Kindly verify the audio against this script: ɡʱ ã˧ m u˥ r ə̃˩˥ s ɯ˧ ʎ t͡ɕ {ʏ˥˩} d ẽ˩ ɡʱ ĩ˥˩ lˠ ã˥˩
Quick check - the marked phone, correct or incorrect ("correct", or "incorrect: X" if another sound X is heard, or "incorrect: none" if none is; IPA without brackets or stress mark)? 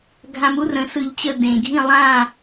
incorrect: ə˥˩